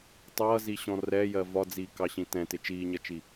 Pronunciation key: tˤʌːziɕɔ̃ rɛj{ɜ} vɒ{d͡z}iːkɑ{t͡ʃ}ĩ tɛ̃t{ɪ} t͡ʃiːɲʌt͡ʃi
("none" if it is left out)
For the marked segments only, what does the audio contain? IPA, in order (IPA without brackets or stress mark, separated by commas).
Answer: ɜ, d͡z, ɕ, ɪ